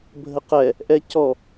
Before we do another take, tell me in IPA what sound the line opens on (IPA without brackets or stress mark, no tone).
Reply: bʱ